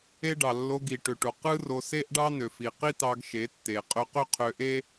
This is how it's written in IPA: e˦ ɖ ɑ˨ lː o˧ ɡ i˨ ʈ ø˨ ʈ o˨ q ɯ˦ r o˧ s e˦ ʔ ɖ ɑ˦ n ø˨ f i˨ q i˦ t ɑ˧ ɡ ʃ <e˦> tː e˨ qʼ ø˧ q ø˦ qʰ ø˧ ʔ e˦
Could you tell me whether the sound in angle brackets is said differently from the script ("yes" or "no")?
yes